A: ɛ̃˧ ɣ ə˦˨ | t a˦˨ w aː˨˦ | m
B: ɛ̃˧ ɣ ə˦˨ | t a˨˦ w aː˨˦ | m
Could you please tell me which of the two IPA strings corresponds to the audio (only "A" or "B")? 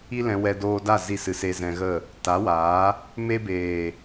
B